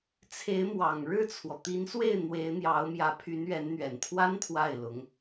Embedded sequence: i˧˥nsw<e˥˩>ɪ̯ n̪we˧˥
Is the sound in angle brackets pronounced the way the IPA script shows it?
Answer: yes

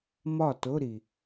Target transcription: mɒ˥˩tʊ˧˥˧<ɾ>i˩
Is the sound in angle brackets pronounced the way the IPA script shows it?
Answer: yes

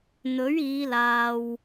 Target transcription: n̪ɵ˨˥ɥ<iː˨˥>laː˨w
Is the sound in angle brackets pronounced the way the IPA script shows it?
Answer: no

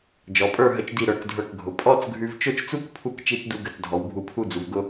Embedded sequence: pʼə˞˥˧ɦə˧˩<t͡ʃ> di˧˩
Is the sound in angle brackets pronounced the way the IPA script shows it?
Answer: yes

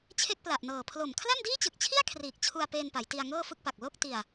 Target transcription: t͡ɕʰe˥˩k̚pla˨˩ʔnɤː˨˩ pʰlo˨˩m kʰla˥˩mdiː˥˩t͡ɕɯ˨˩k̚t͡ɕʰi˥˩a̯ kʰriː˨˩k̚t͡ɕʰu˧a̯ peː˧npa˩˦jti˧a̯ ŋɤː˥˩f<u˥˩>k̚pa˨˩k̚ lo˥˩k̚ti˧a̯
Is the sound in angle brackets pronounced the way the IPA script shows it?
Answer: no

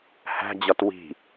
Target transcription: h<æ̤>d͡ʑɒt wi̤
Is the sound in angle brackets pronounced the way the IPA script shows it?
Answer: yes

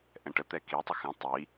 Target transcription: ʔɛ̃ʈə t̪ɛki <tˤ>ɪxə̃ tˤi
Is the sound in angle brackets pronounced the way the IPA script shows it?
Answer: yes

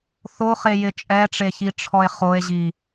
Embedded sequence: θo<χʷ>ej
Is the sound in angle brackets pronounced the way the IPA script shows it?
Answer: no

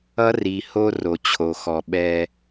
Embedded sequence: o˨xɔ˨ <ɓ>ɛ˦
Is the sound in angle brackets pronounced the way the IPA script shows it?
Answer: yes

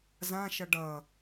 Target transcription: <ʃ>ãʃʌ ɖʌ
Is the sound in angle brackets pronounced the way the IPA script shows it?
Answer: no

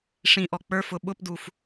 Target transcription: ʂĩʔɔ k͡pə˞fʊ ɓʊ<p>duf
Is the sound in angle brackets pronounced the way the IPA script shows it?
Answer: yes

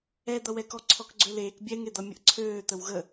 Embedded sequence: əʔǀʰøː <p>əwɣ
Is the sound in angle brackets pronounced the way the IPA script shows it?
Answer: no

